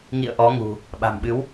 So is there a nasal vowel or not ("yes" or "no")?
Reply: no